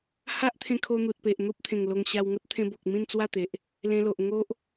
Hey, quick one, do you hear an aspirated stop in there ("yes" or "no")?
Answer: yes